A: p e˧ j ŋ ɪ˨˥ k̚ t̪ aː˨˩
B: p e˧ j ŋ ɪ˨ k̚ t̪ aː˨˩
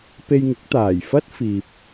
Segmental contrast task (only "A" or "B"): A